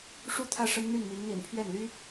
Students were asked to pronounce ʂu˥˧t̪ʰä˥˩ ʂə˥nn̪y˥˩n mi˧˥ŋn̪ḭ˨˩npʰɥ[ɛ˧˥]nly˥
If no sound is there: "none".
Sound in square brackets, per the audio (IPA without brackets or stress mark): ɛ˥˩